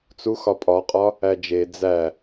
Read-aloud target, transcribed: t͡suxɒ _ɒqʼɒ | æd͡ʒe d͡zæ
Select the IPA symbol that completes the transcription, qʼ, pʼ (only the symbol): pʼ